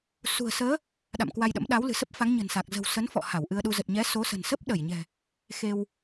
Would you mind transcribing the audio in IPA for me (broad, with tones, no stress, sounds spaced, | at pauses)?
s ṳ˨˩ ə̯ s əː˨˦ | ɗ a̰˧˨ m k w a˧ j ɗ ə̰˧˥ m ɗ a˨˦ w l ɨ̤˨˩ s ə˦˥ p̚ f a˨˦ ŋ ɲ ə̤˨˩ n s a˨˩ k̚ z ə̤˨˩ w s ə˨˦ n f ɔ̰˧˨ h a˧˩ w ʔ ɨ˧ ə̯ ɗ u˧ z ə˨˩ t̚ ɲ ɛ˨˦ s o˨˦ s ə̤˨˩ n s ə˦˥ p̚ ɗ ə˧˩ j ɲ ɛ̤˨˩ | x e˧ w